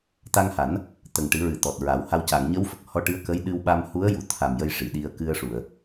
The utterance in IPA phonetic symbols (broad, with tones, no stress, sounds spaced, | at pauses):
t̪ a˧ ŋ h a˨˩˦ n | t̪ ə˨˩ ŋ ʈ ɨ˨˩˦ ɹ ɨ˨˩ t̪ ɔ˨˩ t̚ ɹ a˨˩˦ w h a˧ w c a˨˩˨ ŋ ɲ ə˧˥ w f ə˨˩ k̚ h ɔ˧ ʈ ɨ˧˥ ə̯ k ə˧˥ j ɗ ɨ˧ w ɓ a˧ m h u˧˥ ə̯ j u˨˩˨ t̪ʰ a˨˩ m j ə˧ j ʂ i˨˩˨ ɗ i˧ ə̯ k ɨ˧ ə̯ ʂ u˨˩˨ ə̯